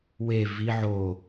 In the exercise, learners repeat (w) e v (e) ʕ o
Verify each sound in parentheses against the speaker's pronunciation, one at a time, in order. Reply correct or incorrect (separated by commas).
correct, incorrect